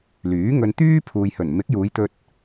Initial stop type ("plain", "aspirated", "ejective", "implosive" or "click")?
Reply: plain